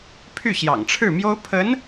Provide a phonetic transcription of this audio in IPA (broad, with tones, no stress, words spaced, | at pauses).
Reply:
pʰy˥˩ɕjɑ̰˨˩ŋʈ͡ʂʰɻ̩˥˩mjo˥ʊ̯ pʰə˧˥n